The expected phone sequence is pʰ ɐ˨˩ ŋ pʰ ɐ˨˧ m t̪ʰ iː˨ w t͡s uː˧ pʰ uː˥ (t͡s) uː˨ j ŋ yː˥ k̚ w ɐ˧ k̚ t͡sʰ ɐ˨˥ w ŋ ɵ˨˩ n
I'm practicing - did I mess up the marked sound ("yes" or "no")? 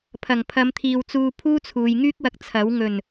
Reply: yes